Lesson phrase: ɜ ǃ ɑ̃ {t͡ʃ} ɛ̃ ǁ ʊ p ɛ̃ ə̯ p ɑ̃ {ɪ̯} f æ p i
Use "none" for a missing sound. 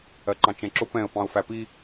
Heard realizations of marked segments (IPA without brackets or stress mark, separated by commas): t͡ʃ, ʊ̯